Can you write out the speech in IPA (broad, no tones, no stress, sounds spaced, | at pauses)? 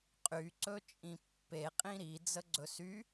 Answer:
qʼ y ǀ ɵ t͡ʃʼ ĩ pː e qʼ ĩ ɾ i d͡z ə ɡ͡ǀ ɵ s y